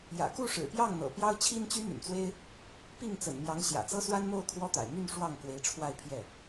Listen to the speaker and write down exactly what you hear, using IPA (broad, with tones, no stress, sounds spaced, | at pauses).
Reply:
j ä̰˨˩ k u˥˩ ʂ ɻ̩˨˩ p j ɑ˥˩ ŋ n̪ ɤ̰˨˩ p j ɑ˥ ʊ̯ t͡ɕʰ i˥ n t͡ɕ y˥ n̪ y̰˨˩ n t͡s w e˥ ɪ̯ | p i˥˩ ŋ t͡s ə̰˨˩ n m j ɑ˧˥ ŋ ɕ j ä̰˨˩ t͡s ɤ˥ s w a˥ n m o˥˩ ʊ̯ kʰ w ɔ˥ t̪ a̰˨˩ ɪ̯ m y˥˧ n ʂ w ɑ˥˩ ŋ k w e˧˥ ɪ̯ ʈ͡ʂʰ w a˥˧ ɪ̯ pʰ j ɛ˥˩